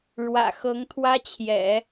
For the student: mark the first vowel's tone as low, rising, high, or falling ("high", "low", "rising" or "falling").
low